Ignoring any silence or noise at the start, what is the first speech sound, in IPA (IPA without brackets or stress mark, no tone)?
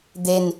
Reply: d̪